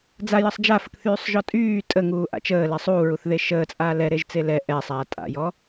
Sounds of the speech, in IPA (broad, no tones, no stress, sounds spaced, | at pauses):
d͡z a j ə sˤ d͡ʒ a f ə k θ yː sˤ ʒ ɔ tʼ yː tʼ ə ŋ uː ʔ a̰ t͡ʃ əː l ɛ sˤ uː ɹ u θ ð e ʃ əː t͡sʼ aː l ɛ ɾ e ʒ t͡s e l ɛ ʔ ɛ sˤ aː tʼ a̰ j ɔ